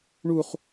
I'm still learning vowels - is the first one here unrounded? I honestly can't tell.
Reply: no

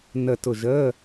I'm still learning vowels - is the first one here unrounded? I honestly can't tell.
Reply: yes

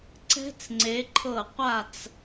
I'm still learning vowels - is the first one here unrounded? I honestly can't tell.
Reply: yes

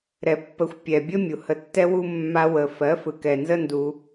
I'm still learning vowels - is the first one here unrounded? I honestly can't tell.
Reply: yes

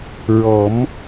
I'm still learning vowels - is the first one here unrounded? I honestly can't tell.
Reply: no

